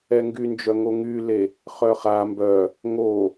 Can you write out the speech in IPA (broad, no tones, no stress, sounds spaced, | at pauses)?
ɛ ŋ ɡ y n d͡ʒ œ ŋ o ŋ y l e | χ œ χ a m b œ | ŋ o